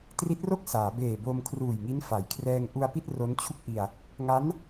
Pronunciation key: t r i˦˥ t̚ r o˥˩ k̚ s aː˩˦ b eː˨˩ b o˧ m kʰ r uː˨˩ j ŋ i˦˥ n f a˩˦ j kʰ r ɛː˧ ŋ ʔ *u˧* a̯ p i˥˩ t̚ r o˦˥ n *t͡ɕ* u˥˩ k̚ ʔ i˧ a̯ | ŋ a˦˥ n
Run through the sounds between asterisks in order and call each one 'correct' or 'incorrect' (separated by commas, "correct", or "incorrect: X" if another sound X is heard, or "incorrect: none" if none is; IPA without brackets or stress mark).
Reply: correct, incorrect: t͡ɕʰ